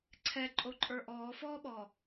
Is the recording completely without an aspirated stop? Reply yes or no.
no